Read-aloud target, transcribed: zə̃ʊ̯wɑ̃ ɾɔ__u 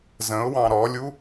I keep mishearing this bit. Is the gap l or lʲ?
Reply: lʲ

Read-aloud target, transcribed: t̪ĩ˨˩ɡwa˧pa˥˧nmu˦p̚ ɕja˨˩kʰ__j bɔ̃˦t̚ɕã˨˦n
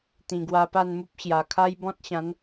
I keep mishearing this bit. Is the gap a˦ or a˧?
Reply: a˦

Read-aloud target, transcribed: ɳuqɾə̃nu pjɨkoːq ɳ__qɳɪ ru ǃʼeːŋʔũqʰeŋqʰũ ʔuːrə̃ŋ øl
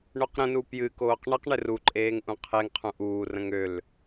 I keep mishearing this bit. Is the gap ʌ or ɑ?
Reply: ʌ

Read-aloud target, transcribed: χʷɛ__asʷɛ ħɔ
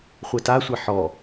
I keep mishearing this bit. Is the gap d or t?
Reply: t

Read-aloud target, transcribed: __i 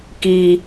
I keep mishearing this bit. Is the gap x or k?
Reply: k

